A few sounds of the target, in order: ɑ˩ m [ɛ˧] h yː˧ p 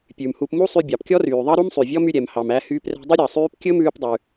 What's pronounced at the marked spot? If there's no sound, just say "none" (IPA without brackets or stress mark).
æ˧